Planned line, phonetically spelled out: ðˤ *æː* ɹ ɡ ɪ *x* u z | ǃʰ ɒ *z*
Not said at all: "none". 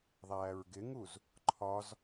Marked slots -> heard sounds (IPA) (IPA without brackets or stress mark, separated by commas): æː, ŋ, z